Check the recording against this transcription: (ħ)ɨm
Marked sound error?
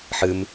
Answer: no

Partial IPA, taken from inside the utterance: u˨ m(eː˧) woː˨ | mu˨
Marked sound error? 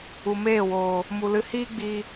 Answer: yes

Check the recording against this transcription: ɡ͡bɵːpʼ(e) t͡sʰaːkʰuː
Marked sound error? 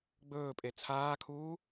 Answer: no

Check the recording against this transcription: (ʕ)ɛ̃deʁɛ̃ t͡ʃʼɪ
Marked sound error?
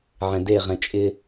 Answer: no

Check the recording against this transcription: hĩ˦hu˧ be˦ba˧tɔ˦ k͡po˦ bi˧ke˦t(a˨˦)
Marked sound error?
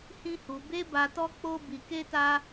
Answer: yes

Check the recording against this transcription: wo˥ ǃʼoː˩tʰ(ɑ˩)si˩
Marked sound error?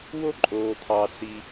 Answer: no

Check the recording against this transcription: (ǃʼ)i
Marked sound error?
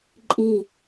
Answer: no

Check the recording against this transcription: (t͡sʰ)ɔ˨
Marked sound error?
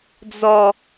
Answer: yes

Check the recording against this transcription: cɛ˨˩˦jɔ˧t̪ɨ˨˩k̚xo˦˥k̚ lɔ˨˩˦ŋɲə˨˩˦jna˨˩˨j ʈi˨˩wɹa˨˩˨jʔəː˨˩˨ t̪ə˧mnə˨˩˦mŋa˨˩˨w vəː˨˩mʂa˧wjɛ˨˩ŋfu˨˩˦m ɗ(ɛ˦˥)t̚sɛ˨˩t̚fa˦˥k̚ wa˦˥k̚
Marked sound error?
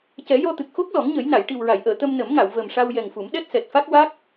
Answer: no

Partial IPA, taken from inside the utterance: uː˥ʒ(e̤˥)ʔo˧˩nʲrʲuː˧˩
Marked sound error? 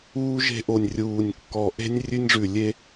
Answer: no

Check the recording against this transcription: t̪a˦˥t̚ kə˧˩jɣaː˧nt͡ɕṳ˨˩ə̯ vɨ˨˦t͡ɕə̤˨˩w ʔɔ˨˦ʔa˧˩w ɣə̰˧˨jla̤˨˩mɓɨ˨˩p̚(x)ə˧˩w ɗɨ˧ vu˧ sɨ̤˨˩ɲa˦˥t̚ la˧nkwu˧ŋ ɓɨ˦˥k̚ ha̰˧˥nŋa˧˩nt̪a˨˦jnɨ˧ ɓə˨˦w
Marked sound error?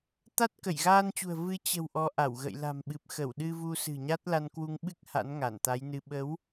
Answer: no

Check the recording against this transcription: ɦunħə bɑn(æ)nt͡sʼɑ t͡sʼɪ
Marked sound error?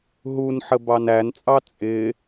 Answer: no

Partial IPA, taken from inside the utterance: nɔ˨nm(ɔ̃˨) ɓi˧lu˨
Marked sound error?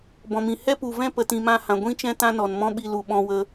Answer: yes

